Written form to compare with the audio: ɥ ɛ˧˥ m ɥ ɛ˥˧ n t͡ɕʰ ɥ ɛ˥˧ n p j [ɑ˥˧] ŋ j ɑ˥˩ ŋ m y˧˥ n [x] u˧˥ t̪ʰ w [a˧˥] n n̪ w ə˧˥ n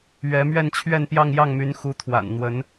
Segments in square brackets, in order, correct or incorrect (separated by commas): correct, correct, incorrect